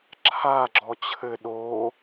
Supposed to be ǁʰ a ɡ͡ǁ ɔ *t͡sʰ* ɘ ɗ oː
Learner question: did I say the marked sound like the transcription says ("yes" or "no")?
no